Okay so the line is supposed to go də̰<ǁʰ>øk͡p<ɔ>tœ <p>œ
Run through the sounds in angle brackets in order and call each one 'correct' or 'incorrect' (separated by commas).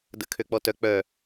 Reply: incorrect, correct, incorrect